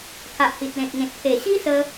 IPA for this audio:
kʰ a˨ ʔ h i˨ t̚ l ẽ˨ t̚ ŋ ẽ˨ t̚ pʰ e˨˩ ɕ i˦ s ə˧

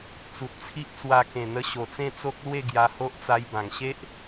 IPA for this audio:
t͡s u˨ t̚ t͡sʰ i˦ ʔ t͡s w a˧ k ẽ˨˩ n̪ ə˧ ɕ o˨˩ t͡s ẽ˥˧ t͡s o˦ k̚ l w e˥˧ ɡ j a˧ h o˦ ʔ t͡s a˧ j b ã˨˩ ŋ ɕ e˦ ʔ

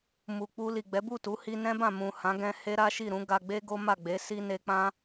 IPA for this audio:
m u˨ k͡p u˧ l i˨ ɡ͡b ɛ˨˦ b u˦˨ t u˨˦ h i˧ n ɛ̃˦ b ã˦˨ m ũ˨ h ã˨˦ ɡ ɛ̃˧ h e˦ ɾ a˦ ʃ i˦˨ ɾ ũ˨˦ ɡ a˧ ɡ͡b e˦ ɡ o˦ m a˦˨ ɡ͡b e˨˦ s i˧ n e˧ k͡p ã˦

